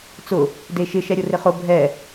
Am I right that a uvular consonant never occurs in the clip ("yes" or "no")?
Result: no